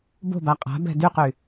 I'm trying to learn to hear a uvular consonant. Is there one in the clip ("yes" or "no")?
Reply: yes